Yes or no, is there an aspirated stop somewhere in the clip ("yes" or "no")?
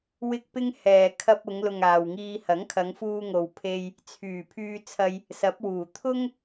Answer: yes